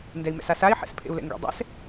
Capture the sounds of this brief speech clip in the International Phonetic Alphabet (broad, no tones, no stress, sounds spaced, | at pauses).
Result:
n d ɛ i̯ m ɛ̰ s a s a i̯ ħ ɛ̰ s pʰ ḛ u̯ l ɛ̰ ŋ ɡ ḛ dˤ ɛ̰ s